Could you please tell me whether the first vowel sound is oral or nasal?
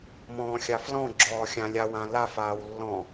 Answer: nasal